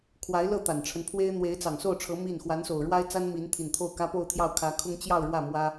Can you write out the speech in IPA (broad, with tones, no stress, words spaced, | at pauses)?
kʰwa˧˥ɪ̯lɤ˥˩ t̪a˨˩nʈ͡ʂʰə˦npʰwe˥ɪ̯ n̪we˧˥ɪ̯t͡sɑ˨˩ŋso˥˩ʊ̯ʈ͡ʂʰɤ˧˥ mi˥˩n xwa˧˥nso˨˩ʊ̯ɻwa˥ɪ̯ t͡sa˥n mi˧˥n t̪ʰi˨˩nt̪ʰo˥˩ʊ̯kä˥ po˥˧ʊ̯t̪ʰjɑ˥˩ʊ̯kʰä˧˥kʰʊ˥ŋ t͡ɕjɑ˥˧ʊ̯ɻwä˥˩ mwä˥